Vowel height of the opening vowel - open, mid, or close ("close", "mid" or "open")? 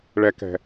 mid